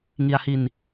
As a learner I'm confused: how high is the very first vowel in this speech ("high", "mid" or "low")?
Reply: high